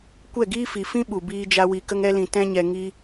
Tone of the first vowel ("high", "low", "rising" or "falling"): falling